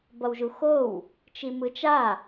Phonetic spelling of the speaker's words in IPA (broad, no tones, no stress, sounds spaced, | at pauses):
b ʌ w ʒ u x o w | t͡ʃ i m ɯ t͡ʃ a